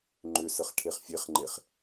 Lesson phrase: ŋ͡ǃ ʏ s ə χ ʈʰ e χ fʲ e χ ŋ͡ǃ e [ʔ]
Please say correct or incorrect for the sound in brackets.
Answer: incorrect: χ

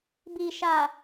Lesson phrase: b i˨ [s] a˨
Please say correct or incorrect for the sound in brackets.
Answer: incorrect: ʃ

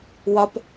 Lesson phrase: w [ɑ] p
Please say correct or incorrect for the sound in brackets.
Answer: incorrect: ɒ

